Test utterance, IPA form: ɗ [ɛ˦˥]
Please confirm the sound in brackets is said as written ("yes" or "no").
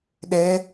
yes